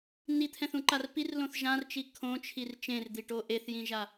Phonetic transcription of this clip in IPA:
n i t̪ʰ ɛ̃ θ ũ ǃ a r p i r l õ θ ʒ ã r t͡ʃ i kʰ õ t͡ʃʰ i r t͡ʃ ẽ r d̪ i ʈ o ʔ e θ j ĩ ʒ a

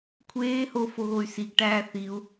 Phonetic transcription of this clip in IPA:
kʷʰ eː h o f o ɣ o y̯ s i ɡ ʈ æː θ i u̯

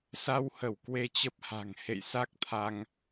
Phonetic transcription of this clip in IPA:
s a˧ w h ə˧˩ w k w e˧ t͡ɕ ə˦˥ p̚ h a̤˨˩ ŋ h ḛ˧˨ j s a˦˥ k̚ t̪ʰ a˧ ŋ

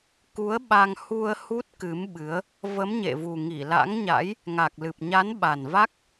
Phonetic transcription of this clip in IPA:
k u˨˦ ə̯ ɓ a˧ ŋ h u˧ ə̯ h u˦˥ t̚ k ɨ˨˦ m ɓ ɨ˨˦ ə̯ | v ə˨˦ m ɲ ḛ˧˨ v u˨˩ ŋ i˧˩ l a̰˧˥ ŋ ɲ a̰˧˥ j | ŋ a˨˩ k̚ l ɨ˨˩ p̚ ɲ a˨˦ n ɓ a˨˩ n v a˦˥ k̚

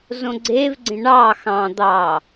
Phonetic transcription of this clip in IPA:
z õ ɡ͡ǀ e v ɡ͡ǀ ẽ ɳ ɑ x ɑ̃ d̪ ɑ

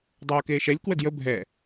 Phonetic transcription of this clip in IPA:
dˤ oː k eː ʃ ɛ lʲ k w ə d j ə bʱ ɛ

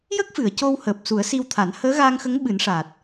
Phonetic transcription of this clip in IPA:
j ə˦˥ k̚ f ɨ˨˩˨ ə̯ c o˧ w h əː˨˩ p̚ s u˨˩˦ ə̯ s i˧ w t̪ʰ a˨˩˦ n h əː˧˥ ɣ aː˧ ŋ x ə˧˥ ŋ ɓ ɨ˨˩˦ n ʂ a˨˩ t̚

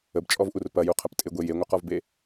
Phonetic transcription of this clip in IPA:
ə b t͡ʃʼ ɔ v ʔ u r p ɐ j u qʰ ɐ p tʼ ɪ ɡʷ e j e ŋʷ ɪ q ɔ v b e

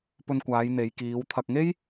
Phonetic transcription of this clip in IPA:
p ɵ˧ n kʷ aː˨˧ j n̪ e˨˧ j k iː˨˧ w t̪ʰ ɐ˧ k̚ ŋ e˥ j

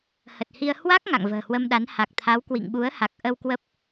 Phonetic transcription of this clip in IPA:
h ə˨˩ t̚ h i˧ ə̯ h w a˦˥ k̚ ŋ a̰˧˨ ŋ v ə̤ː˨˩ h w ə˧ m ɗ a˨˦ n h a˨˩ k̚ t̪ʰ a˨˦ w k w ḭ˧˨ ŋ ɓ u˨˦ ə̯ h a˨˩ k̚ ʔ ə˧ w k w ə˦˥ p̚

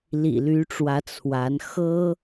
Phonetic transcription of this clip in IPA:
l ḭ˨˩ l y˧˥ ʈ͡ʂ w ä˧˥ t͡sʰ w a˧˥ n x ɤ˥

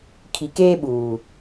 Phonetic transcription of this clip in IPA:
kʰ i˨ k eː˦ ɓ uː˨

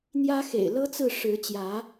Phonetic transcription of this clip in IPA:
n̪ j ä˦ x ḛ˨˩ ɪ̯ l ɤ˦ t͡s ɹ̩˥˨ ʂ ɻ̩˨˦ t͡ɕ j ä˨˦

